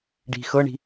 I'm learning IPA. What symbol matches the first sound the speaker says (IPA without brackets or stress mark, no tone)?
ɖ